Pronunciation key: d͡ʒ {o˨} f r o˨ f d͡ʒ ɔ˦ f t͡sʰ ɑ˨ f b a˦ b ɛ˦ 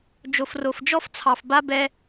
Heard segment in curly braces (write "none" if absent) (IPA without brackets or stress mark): o˨